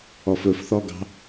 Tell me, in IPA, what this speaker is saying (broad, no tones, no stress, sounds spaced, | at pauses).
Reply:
ɔ f ɵ f θ ɔ ɡ ɑ̤